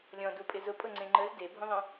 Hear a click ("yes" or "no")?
yes